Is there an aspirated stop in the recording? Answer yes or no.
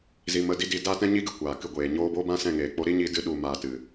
no